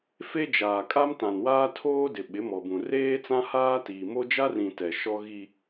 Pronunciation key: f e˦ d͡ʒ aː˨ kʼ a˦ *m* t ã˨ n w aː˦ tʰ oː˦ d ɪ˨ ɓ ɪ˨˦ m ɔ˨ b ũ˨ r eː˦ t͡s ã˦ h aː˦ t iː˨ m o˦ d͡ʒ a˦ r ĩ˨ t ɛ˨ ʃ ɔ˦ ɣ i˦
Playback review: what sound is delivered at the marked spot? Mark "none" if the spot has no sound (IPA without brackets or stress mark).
m